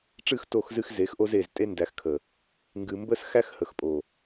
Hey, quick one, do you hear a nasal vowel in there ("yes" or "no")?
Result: no